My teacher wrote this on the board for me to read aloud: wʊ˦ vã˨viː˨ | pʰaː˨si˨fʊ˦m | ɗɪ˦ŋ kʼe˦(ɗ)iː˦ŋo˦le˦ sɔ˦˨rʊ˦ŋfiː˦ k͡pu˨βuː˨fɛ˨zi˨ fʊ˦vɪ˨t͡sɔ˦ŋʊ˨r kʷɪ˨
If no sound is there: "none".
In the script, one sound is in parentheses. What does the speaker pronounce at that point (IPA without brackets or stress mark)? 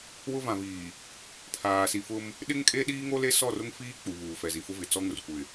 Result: ɗ